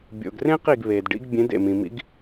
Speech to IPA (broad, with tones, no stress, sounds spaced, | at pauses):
bʲ o̰˨ ɡ r ẽ˥ q i˦˨ ɡ β e˨ d ɖ ḭ˧˥ ɡ bʲ ẽ˧˥ d ḛ˦˨ m ĩ˨ m ḭ˧˥ ɡ